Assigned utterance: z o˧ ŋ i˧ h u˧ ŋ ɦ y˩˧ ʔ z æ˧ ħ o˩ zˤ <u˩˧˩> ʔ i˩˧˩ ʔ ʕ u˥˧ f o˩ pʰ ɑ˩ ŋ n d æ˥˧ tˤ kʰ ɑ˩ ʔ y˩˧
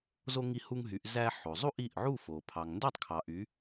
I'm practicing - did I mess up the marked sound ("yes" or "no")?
yes